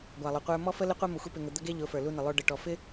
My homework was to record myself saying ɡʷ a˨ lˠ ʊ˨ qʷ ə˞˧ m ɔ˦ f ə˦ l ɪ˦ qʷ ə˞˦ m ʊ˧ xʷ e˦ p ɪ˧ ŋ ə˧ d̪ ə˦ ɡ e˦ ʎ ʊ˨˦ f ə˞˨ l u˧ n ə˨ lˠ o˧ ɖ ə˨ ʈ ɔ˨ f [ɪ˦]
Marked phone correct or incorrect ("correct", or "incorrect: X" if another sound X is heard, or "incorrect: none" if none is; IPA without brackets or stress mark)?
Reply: correct